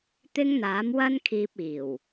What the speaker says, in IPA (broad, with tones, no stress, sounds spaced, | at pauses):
t̪ ɪ˥ ŋ n̪ aː˨˥ m w ɐ˥ n kʰ iː˧ p̚ iː˨˩ w